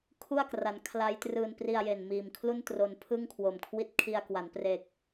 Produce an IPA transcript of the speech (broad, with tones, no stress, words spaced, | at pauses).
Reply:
kʰu˥˩a̯kra˩˦n kʰla˦˥jtrɯː˧n pri˧a̯je˨˩n miː˨˩mkʰlu˥˩n tro˧n pʰɯ˥˩ŋkʰwo˨˩mkʰwi˦˥t̚kʰi˧a̯ kwa˩˦npre˨˩k̚